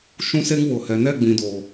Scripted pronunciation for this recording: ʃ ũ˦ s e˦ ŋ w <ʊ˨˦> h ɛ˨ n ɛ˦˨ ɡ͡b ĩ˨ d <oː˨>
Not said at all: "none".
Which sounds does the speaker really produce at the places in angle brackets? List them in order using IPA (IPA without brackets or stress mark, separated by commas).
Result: ʊ˨, oː˨